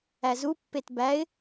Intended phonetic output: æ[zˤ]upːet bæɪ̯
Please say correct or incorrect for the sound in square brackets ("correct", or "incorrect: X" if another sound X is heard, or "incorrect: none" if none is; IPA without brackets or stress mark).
incorrect: z